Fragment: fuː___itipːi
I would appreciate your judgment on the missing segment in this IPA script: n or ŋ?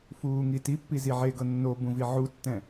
ŋ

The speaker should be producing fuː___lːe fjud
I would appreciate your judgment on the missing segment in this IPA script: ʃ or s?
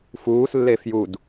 s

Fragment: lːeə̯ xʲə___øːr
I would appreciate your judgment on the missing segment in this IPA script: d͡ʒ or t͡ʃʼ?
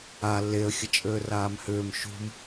t͡ʃʼ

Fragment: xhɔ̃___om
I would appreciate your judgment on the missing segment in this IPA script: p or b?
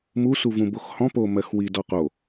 p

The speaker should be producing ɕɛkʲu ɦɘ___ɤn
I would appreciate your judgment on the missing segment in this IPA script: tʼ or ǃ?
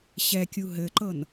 ǃ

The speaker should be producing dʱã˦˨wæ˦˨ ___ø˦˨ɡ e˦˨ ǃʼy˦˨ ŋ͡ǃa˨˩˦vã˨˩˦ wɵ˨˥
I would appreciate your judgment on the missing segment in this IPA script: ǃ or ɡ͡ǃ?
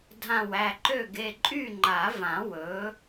ǃ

